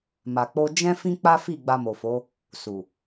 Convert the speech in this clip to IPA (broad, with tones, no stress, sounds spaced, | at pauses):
m a˨ k͡p o˧ d͡ʒ ɛ̃˦ f ĩ˦ k͡p a˦ f i˦˨ ɡ͡b a˧ m o˨ f o˨˦ | s u˨